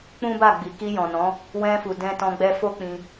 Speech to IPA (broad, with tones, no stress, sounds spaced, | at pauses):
k͡p ũ˦ b a˦˨ ɡ͡b i˨ k i˧ j ɔ̃˨ n ɔ̃˨˦ | w ɛ̃˧ f u˨ d ɛ̃˧ t ɔ̃˧ ɡ͡b ɛ˧ f o˦ k͡p ĩ˧